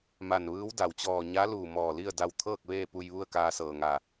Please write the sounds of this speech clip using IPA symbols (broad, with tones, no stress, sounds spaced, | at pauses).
m a˧˩ n ʋ ɯː˧˥ w d a˩ w t͡ɕ ɔː˧˩ ɲ a˧˥ l uː˧˩ m ɔː˧˩ l i˥˨ ə̯ d a˧ w t̪ʰ ɤː˥˨ k̚ ʋ eː˥˨ p u˧ j ʋ u˥˨ ə̯ k aː˧ s ɤː˧˩ ŋ a˧˩